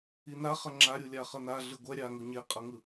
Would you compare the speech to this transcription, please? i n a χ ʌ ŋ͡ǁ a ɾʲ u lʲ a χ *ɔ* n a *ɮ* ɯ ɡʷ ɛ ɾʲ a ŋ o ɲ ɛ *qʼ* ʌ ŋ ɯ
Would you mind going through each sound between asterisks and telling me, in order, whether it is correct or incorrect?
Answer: incorrect, correct, correct

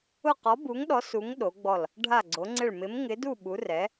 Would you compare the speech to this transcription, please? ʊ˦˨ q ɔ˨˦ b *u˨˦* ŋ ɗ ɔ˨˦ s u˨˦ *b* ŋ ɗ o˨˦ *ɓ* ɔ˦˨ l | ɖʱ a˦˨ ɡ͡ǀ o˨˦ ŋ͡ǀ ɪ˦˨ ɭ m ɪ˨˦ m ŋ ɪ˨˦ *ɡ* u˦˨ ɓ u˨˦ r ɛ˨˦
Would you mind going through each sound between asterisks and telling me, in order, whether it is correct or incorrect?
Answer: correct, incorrect, incorrect, incorrect

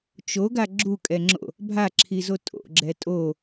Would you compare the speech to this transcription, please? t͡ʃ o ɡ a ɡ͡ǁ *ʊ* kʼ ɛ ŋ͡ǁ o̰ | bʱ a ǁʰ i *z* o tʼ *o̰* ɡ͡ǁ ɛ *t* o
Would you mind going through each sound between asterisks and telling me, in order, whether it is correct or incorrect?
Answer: incorrect, correct, correct, incorrect

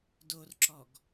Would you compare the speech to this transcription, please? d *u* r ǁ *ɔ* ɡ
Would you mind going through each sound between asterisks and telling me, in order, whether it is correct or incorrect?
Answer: incorrect, correct

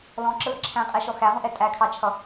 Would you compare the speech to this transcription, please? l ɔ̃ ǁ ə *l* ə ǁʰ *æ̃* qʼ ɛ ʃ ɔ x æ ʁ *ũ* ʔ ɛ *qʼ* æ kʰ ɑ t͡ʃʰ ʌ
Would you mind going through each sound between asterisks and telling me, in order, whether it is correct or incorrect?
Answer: correct, correct, correct, incorrect

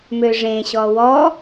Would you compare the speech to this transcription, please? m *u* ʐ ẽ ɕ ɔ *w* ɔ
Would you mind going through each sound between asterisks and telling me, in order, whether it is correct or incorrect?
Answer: incorrect, correct

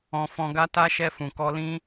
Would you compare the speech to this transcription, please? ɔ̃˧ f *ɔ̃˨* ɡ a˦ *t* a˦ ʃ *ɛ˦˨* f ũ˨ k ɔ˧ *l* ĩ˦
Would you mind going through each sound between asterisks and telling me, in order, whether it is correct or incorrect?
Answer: incorrect, correct, incorrect, correct

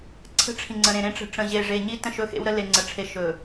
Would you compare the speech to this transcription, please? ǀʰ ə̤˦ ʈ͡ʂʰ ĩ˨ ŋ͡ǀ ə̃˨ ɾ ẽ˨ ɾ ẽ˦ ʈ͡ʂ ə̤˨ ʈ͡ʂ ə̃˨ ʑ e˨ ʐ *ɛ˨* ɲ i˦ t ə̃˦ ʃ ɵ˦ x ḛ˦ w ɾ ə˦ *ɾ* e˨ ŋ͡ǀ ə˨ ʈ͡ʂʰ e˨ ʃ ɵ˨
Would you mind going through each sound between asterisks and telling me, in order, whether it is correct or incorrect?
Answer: incorrect, incorrect

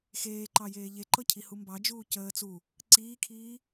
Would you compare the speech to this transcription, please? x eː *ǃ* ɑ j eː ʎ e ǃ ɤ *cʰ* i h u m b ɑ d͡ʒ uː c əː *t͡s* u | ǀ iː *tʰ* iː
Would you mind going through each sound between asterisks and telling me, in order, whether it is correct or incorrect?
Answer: correct, correct, correct, incorrect

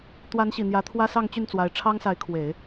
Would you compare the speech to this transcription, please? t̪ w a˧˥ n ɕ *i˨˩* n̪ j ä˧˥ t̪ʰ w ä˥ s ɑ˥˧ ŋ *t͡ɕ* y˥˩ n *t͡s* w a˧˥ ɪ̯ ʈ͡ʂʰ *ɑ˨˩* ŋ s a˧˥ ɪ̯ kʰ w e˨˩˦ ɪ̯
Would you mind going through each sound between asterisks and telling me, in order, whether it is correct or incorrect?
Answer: correct, correct, correct, incorrect

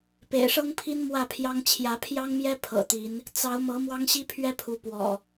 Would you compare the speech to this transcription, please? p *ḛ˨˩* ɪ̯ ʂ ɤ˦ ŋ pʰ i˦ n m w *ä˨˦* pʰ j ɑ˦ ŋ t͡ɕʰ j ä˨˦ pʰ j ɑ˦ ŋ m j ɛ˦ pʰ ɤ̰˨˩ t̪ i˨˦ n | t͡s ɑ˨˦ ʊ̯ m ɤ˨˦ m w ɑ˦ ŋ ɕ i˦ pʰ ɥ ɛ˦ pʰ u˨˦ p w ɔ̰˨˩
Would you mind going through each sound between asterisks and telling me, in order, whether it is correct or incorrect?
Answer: correct, incorrect

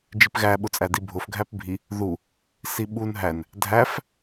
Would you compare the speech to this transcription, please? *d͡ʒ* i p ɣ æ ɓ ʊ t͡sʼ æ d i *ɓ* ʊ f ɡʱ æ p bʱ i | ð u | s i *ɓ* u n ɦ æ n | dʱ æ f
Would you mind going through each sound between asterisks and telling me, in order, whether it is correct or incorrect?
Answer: correct, incorrect, correct

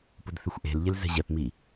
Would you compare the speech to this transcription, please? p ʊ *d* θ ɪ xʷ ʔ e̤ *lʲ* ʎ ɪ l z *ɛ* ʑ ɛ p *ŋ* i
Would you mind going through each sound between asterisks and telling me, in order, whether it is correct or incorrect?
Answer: correct, incorrect, incorrect, incorrect

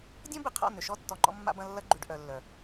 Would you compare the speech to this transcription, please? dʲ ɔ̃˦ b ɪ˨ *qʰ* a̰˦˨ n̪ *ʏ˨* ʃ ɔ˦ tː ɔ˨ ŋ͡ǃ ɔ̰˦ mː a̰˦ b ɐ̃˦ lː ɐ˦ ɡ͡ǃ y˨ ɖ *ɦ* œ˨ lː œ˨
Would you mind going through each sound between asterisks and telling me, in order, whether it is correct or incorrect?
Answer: correct, correct, incorrect

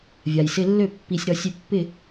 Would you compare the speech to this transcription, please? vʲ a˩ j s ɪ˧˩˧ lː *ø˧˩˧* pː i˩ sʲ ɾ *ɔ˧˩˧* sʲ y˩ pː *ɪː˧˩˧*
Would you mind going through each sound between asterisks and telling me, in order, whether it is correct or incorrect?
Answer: correct, correct, incorrect

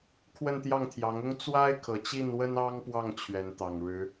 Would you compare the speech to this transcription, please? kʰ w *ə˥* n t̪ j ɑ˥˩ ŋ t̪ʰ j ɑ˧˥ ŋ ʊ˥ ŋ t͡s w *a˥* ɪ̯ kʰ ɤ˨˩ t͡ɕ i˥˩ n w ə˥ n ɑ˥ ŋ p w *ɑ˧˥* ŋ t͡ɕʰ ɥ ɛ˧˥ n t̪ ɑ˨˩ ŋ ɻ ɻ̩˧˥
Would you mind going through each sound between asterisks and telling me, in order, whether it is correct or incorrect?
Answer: incorrect, correct, incorrect

